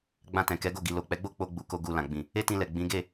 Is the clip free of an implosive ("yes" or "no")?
yes